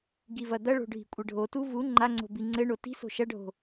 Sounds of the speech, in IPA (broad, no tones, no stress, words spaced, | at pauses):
ɡivɐd̪ɐɭo̤ ɖʱi̤kʷʼɘɖʱotu vu ŋ͡ǃaŋ͡ǀo̤ biŋ͡ǀɘɳo ti̤so̤ ʃɐɖʱo̤